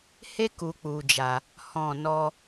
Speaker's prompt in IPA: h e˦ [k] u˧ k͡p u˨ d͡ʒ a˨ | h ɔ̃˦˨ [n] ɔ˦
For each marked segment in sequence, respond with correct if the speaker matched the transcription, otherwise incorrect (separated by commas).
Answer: correct, correct